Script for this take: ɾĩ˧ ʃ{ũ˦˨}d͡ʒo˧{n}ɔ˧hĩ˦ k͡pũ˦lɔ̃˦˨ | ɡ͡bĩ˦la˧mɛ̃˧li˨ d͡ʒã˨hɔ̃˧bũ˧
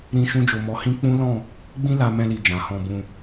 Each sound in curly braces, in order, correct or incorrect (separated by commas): incorrect, incorrect